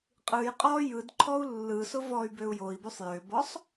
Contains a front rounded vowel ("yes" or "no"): yes